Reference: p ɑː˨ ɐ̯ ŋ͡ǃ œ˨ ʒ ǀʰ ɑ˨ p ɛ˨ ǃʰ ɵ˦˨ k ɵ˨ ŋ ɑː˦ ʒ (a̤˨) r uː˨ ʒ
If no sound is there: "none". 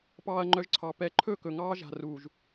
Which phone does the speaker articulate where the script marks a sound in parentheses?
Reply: a̤˨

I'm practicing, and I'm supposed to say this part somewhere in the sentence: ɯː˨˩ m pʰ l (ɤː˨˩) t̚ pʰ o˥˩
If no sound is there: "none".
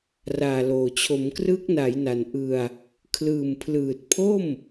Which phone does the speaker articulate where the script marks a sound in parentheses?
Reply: ɯː˨˩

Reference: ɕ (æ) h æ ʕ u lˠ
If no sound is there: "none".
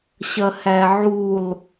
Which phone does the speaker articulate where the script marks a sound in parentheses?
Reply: ɐ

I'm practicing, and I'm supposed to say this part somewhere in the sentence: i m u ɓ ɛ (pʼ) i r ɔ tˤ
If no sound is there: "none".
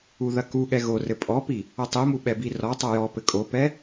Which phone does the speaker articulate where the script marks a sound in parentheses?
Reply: b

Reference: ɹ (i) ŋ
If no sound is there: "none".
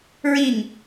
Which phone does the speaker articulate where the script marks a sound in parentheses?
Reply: i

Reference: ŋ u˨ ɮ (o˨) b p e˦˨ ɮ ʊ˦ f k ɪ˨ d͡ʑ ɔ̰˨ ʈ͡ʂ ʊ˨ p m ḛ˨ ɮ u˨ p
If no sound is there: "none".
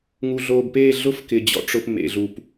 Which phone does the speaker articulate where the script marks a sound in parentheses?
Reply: o˨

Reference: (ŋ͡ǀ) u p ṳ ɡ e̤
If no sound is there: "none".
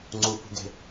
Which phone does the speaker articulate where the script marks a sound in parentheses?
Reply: ŋ͡ǀ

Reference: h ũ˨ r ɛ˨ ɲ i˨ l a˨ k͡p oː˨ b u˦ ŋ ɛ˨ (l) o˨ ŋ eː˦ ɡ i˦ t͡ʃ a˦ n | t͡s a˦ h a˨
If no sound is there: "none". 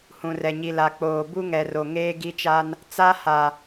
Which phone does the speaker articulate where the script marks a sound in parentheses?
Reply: r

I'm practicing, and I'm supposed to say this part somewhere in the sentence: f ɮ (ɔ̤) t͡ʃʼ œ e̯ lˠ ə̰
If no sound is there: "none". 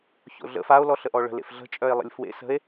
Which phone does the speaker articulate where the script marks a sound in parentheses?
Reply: ə̤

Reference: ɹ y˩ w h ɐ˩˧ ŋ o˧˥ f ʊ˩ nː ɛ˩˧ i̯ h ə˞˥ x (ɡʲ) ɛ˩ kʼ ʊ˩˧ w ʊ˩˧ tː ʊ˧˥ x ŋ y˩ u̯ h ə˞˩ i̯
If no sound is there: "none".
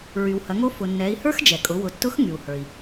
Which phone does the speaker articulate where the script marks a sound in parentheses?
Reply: d͡ʒ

